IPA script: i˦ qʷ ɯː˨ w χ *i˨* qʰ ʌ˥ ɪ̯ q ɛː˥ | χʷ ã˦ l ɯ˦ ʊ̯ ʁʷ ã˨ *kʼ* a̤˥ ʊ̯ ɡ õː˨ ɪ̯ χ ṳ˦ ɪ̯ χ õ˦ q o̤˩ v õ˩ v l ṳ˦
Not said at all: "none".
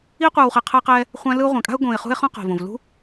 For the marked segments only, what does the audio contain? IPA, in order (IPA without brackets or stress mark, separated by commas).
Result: e˨, kʼ